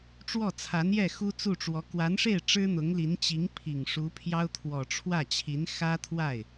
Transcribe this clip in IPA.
ʈ͡ʂ w ɔ˥˩ t͡sʰ a˧˥ n j ɛ˥˩ x u˥ t͡s u˥˩ ʈ͡ʂ w ɔ˧˥ k w a˧˥ n ʂ e˥˩ ɪ̯ ʈ͡ʂ ɻ̩˥ n̪ ʊ˧˥ ŋ l i˧˥ n t͡ɕ i˧˥ ŋ pʰ i˨˩ ŋ ʂ u˧˥ pʰ j ɑ˥ ʊ̯ t̪ʰ w ɔ˨˩ ʈ͡ʂʰ w ä˥˩ t͡ɕʰ i˧˥ n x ä˥ t̪ʰ w a˥˩ ɪ̯

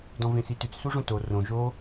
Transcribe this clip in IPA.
d ɔ̃ v ẽ s i t ʉ t͡s s u ʐ õ t o r õ ʒ o

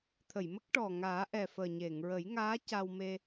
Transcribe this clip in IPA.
t̪ʰ ə˨˩˨ j m ə˦˥ k̚ ʈ ɔ˨˩ ŋ aː˨˩˦ ʔ ɛ˨˩ f əː˨˩ ɲ e˨˩˨ ŋ ɹ ə˨˩˦ j ŋ aː˧˥ c a˧ w m e˧

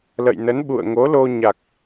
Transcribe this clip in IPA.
l ə̰˧˨ j n ə˨˦ n ɓ ṵ˧˨ ə̯ ŋ o˨˦ l o˧ ɲ a˨˩ k̚

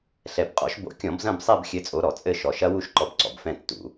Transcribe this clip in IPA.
ɬ ɛ˨˩ b qʼ ɔ̰˨˦ ʃ b o̰˧˩˧ kʲ ɔ̃˧˩˧ b z ɐ̃˦˨ b sˤ ɛ˦˨ b xʲ ɘ˨˦ t͡sʼ o˨˦ ɾ ɔ˧˩˧ t͡sʼ ɘ˦˨ ʃ ɔ˨˩ ʃ ɐ˦˥ w u˦˨ ʃ ǃ ɔ˨˦ b ǀ ɔ̰˨˩ b f ɛ̃˦˨ tː ṵ˧˩˧

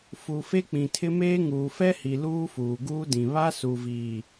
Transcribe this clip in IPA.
f u˨ f e˦ k͡p ĩ˨ tʰ ɪ˦ m eː˦ ŋ uː˨ f ɛ˦ h i˨ l uː˦ f uː˨ ɡ uː˦ d ĩ˨ β a˦ s u˨ v iː˨

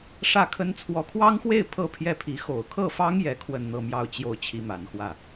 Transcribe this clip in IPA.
ʂ ä˥˩ kʰ ə˥ n t͡sʰ w ɔ˧˥ kʰ w ɑ˥ ŋ x w e˥˩ ɪ̯ pʰ ɤ˥ pʰ j ɛ˥˩ pʰ i˧˥ x o˨˩ ʊ̯ kʰ ɤ˥˩ f ɑ˥ ŋ j ɛ˧˥ kʰ w ə˥˧ n n̪ ɤ˥˧ m j ɑ˥˧ ʊ̯ t͡ɕ j o˥˩ ʊ̯ t͡ɕʰ i˥ m a˧˥ n x w ä˥˩

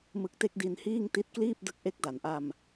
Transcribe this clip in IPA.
m ɯ˦˥ k̚ t e˥˩ k̚ d i˧ n h iː˥˩ ŋ t i˦˥ t̚ k l iː˥˩ p̚ d ɯ˦˥ k̚ ʔ e˦˥ k̚ d a˩˦ n ʔ a˧ m

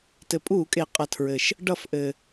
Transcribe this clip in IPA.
t ɘ˩ pʼ uː˧˩˧ kʼ e˩ qʼ ʌ˩ tʰ ɹ ɘ˩ ʃ | ɖ ʌ˧˩˧ f ʔ ɘ˩

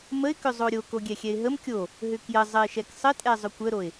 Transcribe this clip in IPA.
m ə ɪ̯ k ʏ zˤ o ɾʲ o k o ɡʲ ɛ xʲ ɛ ɪ̯ ɦ ə m kʲ o | ɦ ʏ k j ə zˤ ə ɪ̯ ʃ ɛ k sˤ ə tʼ ɛ zˤ ʏ kʷ ə ɾ o ɪ̯

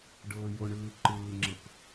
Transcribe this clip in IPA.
ɖ ɤː j o ɳ ɯː ǃ ɯː ŋ͡ǁ ɤ k

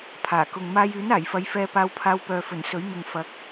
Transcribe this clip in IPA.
pʰ aː˨˩ k ʊ˨ ŋ m aː˧ j yː˨˥ n aː˨˩ j f ɐ˨˧ j f ɛː˧ p aː˧ w pʰ aː˧ w p œː˨ f ɵ˨˩ n s ɵ˨˥ ɥ m ɪ˨ ŋ f ɐ˨˥ k̚

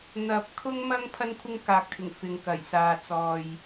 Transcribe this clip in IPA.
n̪ ɐ˨˥ p̚ kʰ ʊ˥ ŋ m ɐ˥ ŋ pʰ ɐ˥ n kʷʰ ɪ˥ ŋ k aː˨ k̚ t̪ʰ ɪ˨˩ ŋ f ɪ˨ ŋ k ɐ˨˩ j s aː˨ t͡s ɔː˨ j

